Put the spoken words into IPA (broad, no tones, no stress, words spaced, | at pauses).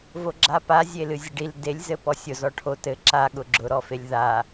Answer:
voɡ͡ǁapa zʲelɨzʲɐɖil delʲzɘ pɔsʲʊ zɔʈʰot ɘ ǁa ɠʊɡ͡ǁʊɾɔfelʲ ða